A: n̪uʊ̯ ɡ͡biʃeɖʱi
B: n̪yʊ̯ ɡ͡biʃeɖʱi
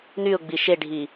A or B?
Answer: B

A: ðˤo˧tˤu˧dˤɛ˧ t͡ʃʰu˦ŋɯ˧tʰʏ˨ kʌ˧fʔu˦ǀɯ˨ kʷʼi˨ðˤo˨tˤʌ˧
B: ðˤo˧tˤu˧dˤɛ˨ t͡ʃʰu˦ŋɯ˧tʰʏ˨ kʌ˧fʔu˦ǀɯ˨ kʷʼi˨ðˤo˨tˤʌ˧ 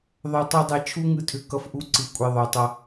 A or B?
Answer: A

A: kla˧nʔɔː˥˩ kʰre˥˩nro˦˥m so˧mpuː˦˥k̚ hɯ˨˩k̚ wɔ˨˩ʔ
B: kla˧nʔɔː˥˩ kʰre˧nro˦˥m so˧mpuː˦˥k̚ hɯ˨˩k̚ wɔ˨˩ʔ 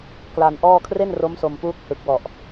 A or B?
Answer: A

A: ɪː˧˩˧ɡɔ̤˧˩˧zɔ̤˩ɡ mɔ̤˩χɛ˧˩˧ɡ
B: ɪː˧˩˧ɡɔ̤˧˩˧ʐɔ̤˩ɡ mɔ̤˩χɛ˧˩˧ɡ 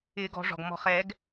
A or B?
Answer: B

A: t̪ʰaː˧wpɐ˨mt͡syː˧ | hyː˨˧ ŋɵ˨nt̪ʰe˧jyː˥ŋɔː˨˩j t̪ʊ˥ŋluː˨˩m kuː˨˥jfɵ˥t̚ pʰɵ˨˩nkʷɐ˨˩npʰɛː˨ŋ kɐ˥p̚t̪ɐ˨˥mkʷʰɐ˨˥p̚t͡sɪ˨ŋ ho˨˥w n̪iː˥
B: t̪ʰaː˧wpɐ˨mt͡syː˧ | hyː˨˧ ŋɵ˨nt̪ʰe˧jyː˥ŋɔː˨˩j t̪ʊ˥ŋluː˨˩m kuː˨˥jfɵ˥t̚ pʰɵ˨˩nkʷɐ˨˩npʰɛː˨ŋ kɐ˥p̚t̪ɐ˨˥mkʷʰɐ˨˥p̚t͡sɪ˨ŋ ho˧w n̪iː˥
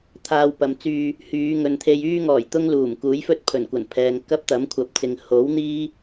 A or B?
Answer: A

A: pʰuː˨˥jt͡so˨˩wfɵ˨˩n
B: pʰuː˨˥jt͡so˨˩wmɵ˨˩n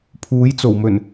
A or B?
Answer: B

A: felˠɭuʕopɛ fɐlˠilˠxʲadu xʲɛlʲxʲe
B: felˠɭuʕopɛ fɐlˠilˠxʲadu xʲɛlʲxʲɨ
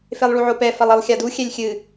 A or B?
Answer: B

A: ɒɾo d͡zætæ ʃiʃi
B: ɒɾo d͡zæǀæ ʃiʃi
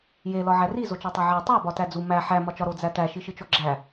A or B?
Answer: A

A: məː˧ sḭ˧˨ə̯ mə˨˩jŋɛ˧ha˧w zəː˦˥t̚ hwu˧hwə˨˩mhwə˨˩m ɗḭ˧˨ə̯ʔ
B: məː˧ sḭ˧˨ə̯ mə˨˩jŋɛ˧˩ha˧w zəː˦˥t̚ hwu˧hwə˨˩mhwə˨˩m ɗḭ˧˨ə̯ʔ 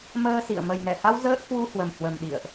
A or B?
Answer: B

